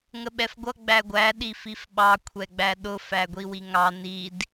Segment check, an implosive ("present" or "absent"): present